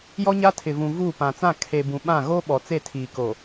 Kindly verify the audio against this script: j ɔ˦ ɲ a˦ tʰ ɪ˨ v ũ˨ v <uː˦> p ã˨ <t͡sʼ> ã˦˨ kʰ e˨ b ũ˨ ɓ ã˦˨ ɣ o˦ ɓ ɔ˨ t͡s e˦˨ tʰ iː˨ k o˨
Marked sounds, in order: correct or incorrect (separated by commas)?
incorrect, incorrect